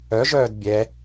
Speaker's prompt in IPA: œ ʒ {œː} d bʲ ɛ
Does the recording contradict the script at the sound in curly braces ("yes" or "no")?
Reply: no